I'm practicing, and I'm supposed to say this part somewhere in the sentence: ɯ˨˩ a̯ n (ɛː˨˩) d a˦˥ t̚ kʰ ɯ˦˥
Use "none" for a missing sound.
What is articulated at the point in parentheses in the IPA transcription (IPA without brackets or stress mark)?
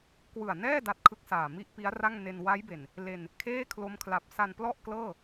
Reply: ɛː˥˩